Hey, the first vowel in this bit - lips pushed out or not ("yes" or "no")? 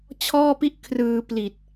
yes